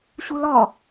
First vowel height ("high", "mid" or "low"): high